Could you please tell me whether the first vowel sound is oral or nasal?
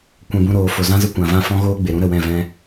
nasal